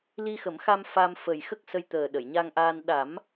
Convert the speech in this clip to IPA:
l i˧ x ə˨˩˦ m x a˧ m f a˧ m f ə˨˩ j x ə˦˥ k̚ s ə˧ j t̪ əː˨˩ ɗ ə˨˩˨ j ɲ a˧ ŋ ʔ aː˧ n ɗ a˨˩˦ m

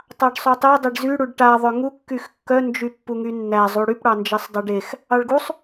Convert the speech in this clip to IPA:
tˤ ɑ ɖ sˤ y tˤ e dˤ e ɖ z y ɽ u ɖ ʈ a ðˤ œ ŋ u kː y x kː œ n d͡ʒ y pː u ŋ y nː æ zˤ u ɽ y p ɽ ɑ n d͡ʒ e sˤ dˤ e ɖ e x | ɑ ɭ ɡ u sˤ

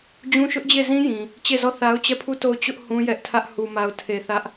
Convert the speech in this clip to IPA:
d͡ʑ ũ˦ ʃ ʊ˦ ʔ d͡ʑ e˦˨ z ĩ˦ j ĩ˨ | t͡ɕ e˦˨ z ɔ˦˨ θ a˦ ʊ̯ t͡ɕ ɛ˦˨ pʰ u˦˨ t o˦˨ ʊ̯ t͡ɕ ʊ˦ ʔ h ũ˦ j ɛ˦ ʔ tʰ ä˦ ʔ h u˨ m a˨ ʊ̯ tʰ e˨ θ ä˦ ʔ

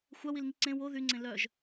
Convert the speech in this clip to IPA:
xʷ a w i l ŋ i ǀ ẽ w o ð y ŋ͡ǀ ẽ l œ ʒ

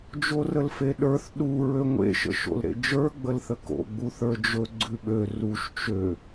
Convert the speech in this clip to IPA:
d͡ʒ o r ə l f e ɗ ə˞ θ ɗ u ɹ ø ŋʷ ḛ ʃ ə̰ ʃ o̰ l ɾ ḛ d͡ʒ ə˞ ɡ͡b ə l θ ə k o̰ ɡ͡b u θ ə˞ d͡ʒ ɵ ɡ͡ǀ ʉ ɓ ø r u ʃ t͡ʃ ø

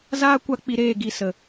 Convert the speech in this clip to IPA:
z aː˦ kʷ a˧ k͡p i˧ ɾ eː˦˨ ɡ i˦˨ s ə˨

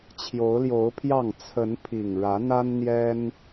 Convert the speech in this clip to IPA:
t͡ɕʰ j o˨˦ ʊ̯ l j o˨˦ ʊ̯ pʰ j ɑ˥˨ ŋ t͡sʰ ə˨˦ n pʰ i˨˩ ŋ ɻ ä˨˦ n̪ a˦ n n̪ j ɛ˦ n

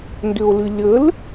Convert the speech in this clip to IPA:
n d ʏ o̯ l ɨ lʲ ə l

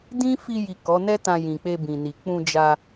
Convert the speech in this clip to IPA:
d ĩ˦ f i˧ j i˨ k ɔ˨˦ n ɛ˦ t ã˧ j ĩ˨ k͡p e˧ b ĩ˨ n i˨ k͡p ũ˧ d͡ʒ a˧

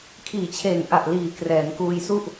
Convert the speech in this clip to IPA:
kʰ iː˨˩ t͡ɕʰ eː˨˩ ŋ ʔ a˨˩ ʔ l iː˨˩ k r ɛː˩˦ n k uː˧ j s u˥˩ ʔ

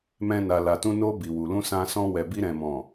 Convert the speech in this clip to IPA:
m ɛ̃˧ n a˨ l a˨ t ũ˧ n o˧ b i˨ w u˨ l ũ˧ s ã˧ s ɔ̃˧ w ɛ˨ b i˧ ɾ ɛ̃˨ m ɔ̃˨

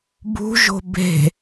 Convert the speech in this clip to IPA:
b ṳ ʒ o̤ b e̤

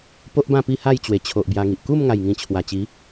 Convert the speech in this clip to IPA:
p o˦ ʔ b ã˥˧ p i˥˧ h a˥˧ j t͡ɕ w e˨˩ t͡ɕʰ o˨ ʔ b j a˧ ŋ i˨ ʔ k u˥˧ m ŋ a˨˩ j ŋ ĩ˨˩ t͡ɕʰ w a˨˩ t͡ɕ i˨˦

